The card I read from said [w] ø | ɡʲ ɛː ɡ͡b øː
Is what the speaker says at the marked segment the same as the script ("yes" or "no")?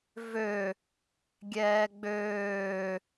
no